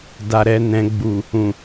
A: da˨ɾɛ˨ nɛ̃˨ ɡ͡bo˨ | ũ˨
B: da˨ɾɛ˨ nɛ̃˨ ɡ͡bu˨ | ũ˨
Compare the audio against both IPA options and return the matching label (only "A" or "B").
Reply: B